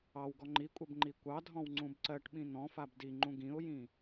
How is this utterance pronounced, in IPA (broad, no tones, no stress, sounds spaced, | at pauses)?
ɑ w ɡ ɔ ŋ͡ǃ i kʷʼ ɜ b ŋ͡ǃ i kʷ ɑ dʱ ɔ̃ w ŋ͡ǀ ũ b ǀ ɜ ʈ ɓ ĩ n̪ ɔ̃ f a b d i ŋ͡ǃ ũ ɡ ĩ ʊ̯ j ĩ